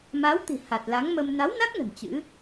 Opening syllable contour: rising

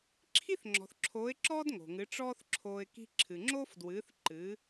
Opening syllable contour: high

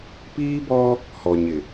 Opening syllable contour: high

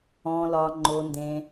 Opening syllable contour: low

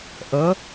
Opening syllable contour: rising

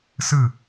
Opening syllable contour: falling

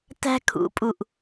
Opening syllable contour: high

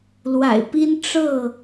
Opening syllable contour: low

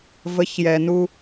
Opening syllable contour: rising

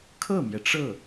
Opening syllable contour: falling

